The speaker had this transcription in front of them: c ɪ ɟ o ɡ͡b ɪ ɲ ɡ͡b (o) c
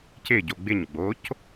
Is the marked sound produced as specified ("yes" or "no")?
yes